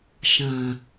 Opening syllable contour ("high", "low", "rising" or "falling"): low